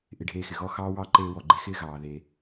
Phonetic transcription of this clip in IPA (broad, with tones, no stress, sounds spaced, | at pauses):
ʔ ɪ˧ ɖʱ eː˧ x ɪ˩ ɣ ɔ˥ x ɑː˥ w ɑ˥ ǃ eː˧ w ɔ˩ ɡ͡ǃ e˧ x ɪː˥ ɣ ɑː˩ ð eː˩